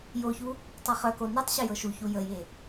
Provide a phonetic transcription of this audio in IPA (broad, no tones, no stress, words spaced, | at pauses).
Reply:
joçu | tˤɤχœko nɛtˤɕə jɤʃuçu jəje